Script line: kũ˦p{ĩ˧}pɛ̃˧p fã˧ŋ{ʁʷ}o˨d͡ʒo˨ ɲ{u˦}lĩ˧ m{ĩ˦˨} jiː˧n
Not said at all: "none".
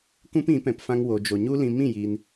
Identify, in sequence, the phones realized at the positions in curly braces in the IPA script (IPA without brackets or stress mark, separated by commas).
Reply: ĩ˨˦, w, u˦, ĩ˦˨